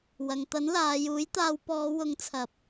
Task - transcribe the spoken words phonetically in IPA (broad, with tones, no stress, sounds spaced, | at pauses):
w ɐ˨ ŋ t̪ ɐ˨˥ n l aː˨˧ j uː˨˥ j t̪ aː˧ w p ɔː˨˧ w ʊ˨˧ ŋ t͡sʰ ɐ˨˥ p̚